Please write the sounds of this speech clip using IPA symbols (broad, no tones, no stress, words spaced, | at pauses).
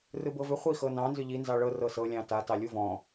rɯbɤvʏ χʷi xɤnɑ̃ nzʏʎi nzɑɭɤ rɤsɤ lʲɑ̃ta tɑlʲuvɔ̃